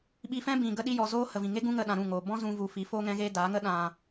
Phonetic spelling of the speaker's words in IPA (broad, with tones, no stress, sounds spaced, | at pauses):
ɓ i˧ f ɛ̃˦ b ĩ˨ ɡ ə˦ ɗ i˦ j ɔ˧ z oː˧ h ə˨ v ĩ˨ ŋ e˦ ɡ ũ˦ ŋ ə˧ ɗ ã˨ ɾ ũ˦˨ ŋ oː˨ b ɔ̃˦ z ũ˦ v u˧ f i˨˦ f oː˦ ŋ ɛ̃˦ ɣ eː˦ d aː˨˦ ŋ ə˦ ɗ ã˧